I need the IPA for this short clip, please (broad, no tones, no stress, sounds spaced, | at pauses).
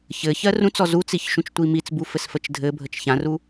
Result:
ç ɘ ç ɜ r ũ t͡s ɔ z u t͡s i ç ʃ ũ t͡ʃ tʷ i m i t͡s b u f ɘ s f ə t͡ʃ dʱ ɘ bʱ ə t͡ʃ ç ã r u